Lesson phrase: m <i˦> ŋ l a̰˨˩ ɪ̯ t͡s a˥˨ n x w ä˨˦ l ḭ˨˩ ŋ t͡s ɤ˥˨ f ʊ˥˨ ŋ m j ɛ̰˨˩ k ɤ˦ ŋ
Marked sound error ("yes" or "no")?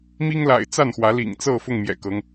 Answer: no